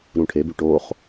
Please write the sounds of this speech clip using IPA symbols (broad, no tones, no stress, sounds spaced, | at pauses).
ɾ ũ ʈʰ e b y ʈ o χ